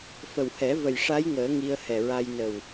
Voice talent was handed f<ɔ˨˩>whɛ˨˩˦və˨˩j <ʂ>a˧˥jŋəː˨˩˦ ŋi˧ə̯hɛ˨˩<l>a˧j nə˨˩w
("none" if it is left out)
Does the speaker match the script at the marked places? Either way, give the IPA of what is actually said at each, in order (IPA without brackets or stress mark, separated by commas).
ə˨˩, ʂ, ɹ